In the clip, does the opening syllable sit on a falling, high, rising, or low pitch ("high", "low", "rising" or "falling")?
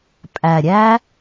low